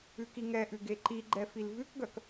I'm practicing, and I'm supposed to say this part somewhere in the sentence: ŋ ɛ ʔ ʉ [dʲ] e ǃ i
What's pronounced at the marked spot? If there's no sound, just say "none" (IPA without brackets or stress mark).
ɡ